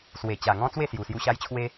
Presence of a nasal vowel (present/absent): present